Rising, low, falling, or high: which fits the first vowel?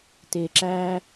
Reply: low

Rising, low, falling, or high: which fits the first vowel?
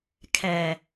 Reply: low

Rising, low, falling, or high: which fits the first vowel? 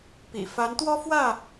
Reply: low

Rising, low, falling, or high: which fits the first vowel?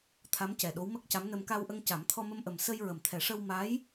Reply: rising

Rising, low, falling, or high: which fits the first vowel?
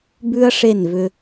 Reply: high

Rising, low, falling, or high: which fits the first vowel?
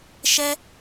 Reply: high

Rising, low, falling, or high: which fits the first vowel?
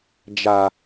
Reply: low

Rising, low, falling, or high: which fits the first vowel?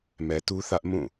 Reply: low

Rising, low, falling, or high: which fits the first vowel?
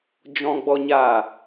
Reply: high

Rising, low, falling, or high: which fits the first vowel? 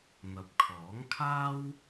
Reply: rising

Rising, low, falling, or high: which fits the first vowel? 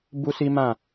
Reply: high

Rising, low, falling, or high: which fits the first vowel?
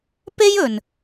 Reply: high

